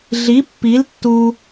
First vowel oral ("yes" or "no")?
yes